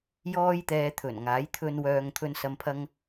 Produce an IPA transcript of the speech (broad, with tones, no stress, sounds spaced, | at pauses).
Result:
j ɔː˥ j t̪ ɛː˧ t̪ʰ ɵ˨˩ n ŋ aː˨˥ j t̪ʰ ɵ˧ n w œː˨ ŋ t̪ʰ ɵ˨ n s ɐ˨ m pʰ ɐ˧ ŋ